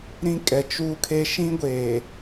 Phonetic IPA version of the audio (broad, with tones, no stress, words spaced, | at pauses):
ɾĩ˦ kʼɛ˨t͡ʃuː˦kʰe˦ ʃĩ˦ ɡʷeː˨